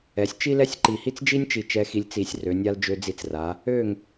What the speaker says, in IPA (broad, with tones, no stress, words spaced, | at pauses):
ɛ˩˧sʲ t͡ʃi˥lɛ˥sʲǃi˧˩hi˥t͡s d͡ʒi˥nʲt͡ʃi˧˩ t͡ʃɛ˧xi˧lʲt͡si˧˩sʲ rø˩˧nʲa˧l d͡ʒø˧d͡zi˧˩t͡sra˩˧ | ø˧˩ŋ